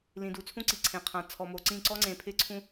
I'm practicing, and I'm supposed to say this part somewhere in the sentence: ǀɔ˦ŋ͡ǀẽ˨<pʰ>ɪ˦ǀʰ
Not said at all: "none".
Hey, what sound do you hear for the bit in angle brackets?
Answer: pʰ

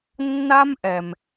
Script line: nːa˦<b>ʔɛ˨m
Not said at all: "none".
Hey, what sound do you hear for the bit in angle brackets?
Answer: m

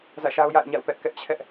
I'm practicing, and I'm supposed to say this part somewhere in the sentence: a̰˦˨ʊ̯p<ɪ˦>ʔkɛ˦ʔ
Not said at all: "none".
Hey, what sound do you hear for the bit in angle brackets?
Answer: ɛ˦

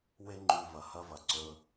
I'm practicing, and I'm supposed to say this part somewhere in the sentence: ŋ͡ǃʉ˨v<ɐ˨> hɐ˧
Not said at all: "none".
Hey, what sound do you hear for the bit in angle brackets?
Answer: ɐ˨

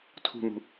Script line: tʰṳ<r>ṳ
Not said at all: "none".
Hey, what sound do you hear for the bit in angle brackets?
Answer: n̪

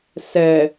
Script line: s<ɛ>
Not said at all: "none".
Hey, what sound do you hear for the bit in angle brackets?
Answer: ɛ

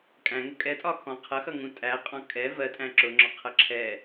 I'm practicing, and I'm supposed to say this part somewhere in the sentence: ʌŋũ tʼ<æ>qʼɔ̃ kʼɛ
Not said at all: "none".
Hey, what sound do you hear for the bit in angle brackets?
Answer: æ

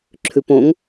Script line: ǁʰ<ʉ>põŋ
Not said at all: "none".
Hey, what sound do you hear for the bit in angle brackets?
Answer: ʉ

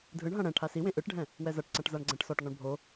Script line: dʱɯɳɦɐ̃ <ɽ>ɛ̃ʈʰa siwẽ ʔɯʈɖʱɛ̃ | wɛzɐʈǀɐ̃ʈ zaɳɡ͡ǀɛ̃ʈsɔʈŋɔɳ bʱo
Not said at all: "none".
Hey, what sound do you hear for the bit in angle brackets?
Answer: ɽ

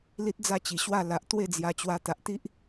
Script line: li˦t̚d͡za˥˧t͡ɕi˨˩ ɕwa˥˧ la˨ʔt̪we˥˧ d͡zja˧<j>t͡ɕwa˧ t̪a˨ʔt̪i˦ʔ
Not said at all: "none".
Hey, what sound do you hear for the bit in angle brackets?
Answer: none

